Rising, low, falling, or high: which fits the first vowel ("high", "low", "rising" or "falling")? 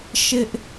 high